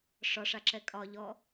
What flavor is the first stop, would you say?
click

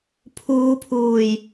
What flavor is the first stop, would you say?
aspirated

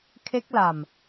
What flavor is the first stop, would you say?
aspirated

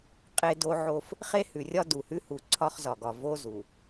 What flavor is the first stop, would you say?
ejective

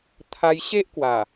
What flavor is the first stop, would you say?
aspirated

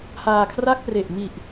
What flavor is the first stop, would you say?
aspirated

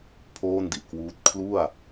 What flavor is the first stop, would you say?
aspirated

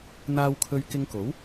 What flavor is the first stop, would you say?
aspirated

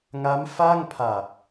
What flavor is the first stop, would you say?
aspirated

